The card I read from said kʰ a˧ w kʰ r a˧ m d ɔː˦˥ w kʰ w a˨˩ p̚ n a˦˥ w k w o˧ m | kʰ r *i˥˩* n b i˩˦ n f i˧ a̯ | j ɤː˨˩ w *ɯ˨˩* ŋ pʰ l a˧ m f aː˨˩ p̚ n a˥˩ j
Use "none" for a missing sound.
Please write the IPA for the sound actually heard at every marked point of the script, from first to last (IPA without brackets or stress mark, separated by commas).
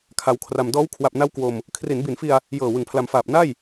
i˩˦, ɯ˨˩